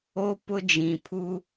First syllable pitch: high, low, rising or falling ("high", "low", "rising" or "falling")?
high